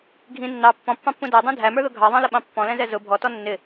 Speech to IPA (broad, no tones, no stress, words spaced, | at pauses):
ɡʱĩ nːɑ pːɔ̃pːɑ̃pːũ dædˤũ dʱæmə˞ðʊ ɡʱɑðˤɑ̃ləɓɑ̃ pːɔ̃lɛ̃zɛ zʊ bʱɔtɔ nːɪ